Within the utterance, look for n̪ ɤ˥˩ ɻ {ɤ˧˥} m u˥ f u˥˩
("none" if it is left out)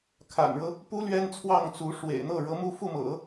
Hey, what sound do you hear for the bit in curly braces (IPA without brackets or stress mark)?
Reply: ɤ˧˥